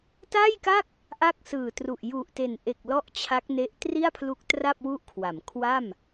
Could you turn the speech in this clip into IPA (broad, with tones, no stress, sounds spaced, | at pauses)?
t a˥˩ j k a˥˩ k̚ | ʔ a˥˩ k̚ s ɯː˨˩ t r u˨˩ ʔ j u˨˩ ʔ t e˨˩ n ʔ e˨˩ k̚ l ɔ˥˩ ʔ t͡ɕʰ a˦˥ k̚ n e˦˥ ʔ t r i˥˩ a̯ pʰ l u˦˥ k̚ t r a˥˩ p̚ w u˥˩ ʔ kʰ w a˩˦ m kʰ w a˥˩ m